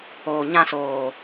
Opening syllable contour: low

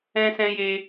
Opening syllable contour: high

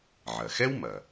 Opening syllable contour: low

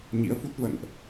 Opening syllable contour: rising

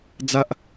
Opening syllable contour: high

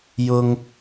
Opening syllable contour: high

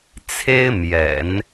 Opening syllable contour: high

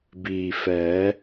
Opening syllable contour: low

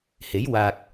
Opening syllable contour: rising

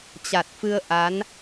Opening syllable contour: low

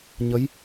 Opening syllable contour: rising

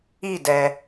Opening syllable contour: falling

